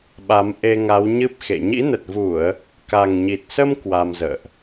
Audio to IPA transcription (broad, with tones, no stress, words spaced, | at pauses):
ɓa˨˦mʔe˧ŋa˨˦wɲɨ˦˥p̚ xḛ˧˨ ɲḭ˧˥nə˨˩t̚vu˧˩˨ə̯ | ka˨˩ŋɲi˨˩t̚sə˧m kwa˧mzə̰ː˧˨ʔ